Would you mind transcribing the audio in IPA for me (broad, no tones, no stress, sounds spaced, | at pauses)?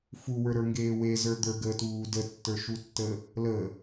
f u w ə˞ ɾ ə˞ ŋ ɡ eː w e z ə˞ d̪ ə˞ ɡ əː t uː d ə tː ə˞ ʃ u tː ə | l ə